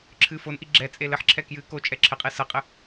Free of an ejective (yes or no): no